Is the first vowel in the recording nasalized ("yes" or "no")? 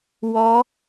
no